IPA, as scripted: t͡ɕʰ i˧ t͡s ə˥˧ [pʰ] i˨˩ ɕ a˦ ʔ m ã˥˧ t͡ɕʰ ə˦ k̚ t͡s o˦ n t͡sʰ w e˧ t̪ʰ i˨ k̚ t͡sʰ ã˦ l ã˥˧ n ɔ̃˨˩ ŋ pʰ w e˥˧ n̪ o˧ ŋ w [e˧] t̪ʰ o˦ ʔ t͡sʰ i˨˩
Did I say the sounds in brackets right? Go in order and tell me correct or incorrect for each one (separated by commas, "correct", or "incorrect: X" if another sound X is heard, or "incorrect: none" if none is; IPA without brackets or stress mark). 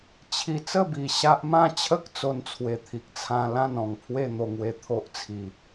incorrect: b, correct